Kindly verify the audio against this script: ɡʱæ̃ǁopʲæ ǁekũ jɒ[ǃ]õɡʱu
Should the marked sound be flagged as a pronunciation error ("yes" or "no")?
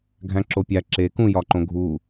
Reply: no